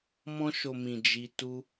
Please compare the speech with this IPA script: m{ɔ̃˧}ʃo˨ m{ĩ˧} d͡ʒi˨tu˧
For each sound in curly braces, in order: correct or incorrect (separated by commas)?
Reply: correct, incorrect